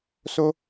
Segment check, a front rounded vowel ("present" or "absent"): absent